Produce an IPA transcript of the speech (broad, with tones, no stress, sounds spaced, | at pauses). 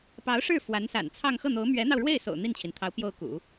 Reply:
p ɑ˧˥ ʊ̯ ʂ ɻ̩˥˩ f w a˧˥ n s a̰˨˩ n t͡sʰ ɑ˥˧ ŋ x ɤ˥˩ n̪ o˧˥ ʊ̯ m ɥ ɛ˧˥ n̪ ɑ˧ ʊ̯ ɻ w e˥˩ ɪ̯ s o̰˨˩ ʊ̯ n̪ i˥˩ n t͡ɕʰ i˩ n t̪ʰ ɑ˧˥ ʊ̯ p j o˥˩ ʊ̯ k ṵ˨˩˦